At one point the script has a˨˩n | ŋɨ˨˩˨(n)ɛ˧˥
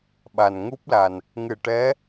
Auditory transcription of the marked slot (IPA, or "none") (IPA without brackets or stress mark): ʈ